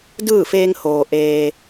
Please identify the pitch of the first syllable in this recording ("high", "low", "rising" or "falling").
falling